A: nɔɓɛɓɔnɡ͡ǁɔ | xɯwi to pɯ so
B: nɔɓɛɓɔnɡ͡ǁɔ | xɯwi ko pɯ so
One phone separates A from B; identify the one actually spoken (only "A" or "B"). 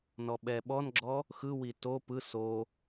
A